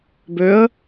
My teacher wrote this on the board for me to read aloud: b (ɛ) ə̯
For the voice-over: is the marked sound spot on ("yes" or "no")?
no